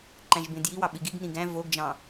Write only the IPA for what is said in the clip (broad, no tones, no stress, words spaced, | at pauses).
ǃæ̃ʒbẽdjiwɑ ɓiɡiɡnĩ ɡæ̃ voɡd͡ʒɑ̃